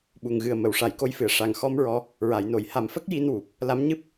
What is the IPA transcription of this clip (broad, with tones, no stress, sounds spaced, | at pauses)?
ɓ u˨˩ ŋ ɣ ɨ˨˩ ə̯ m ə˨˩˨ w ʂ a˨˩˨ j k o˧˥ j f ɨ˨˩ ə̯ ʂ a˨˩ ŋ x ɔ˧ m ɹ ɔ˧ | ɹ a˨˩˨ j n o˨˩˨ j h a˨˩ m f ə˦˥ k̚ j i˧ n w u˨˩ p̚ | l a˧˥ m ɲ ɨ˦˥ p̚